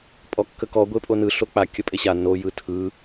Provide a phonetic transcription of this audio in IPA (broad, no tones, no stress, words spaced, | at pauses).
pʼɔkːəkɔ ɡʷepʼonɯ ɬok͡pa kʲəpʼeɕa no jɯtʰɯ